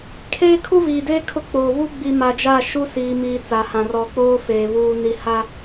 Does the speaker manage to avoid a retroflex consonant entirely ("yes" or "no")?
yes